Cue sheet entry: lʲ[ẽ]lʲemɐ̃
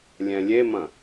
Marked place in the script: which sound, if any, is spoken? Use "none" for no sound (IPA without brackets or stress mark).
ɛ̃